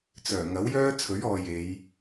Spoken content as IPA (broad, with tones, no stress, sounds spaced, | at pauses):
t͡s œː˨˩ ŋ ɐ˨˥ w j œː˥ t͡sʰ ɵ˨˥ ɥ ɔː˨ j e˨˧ j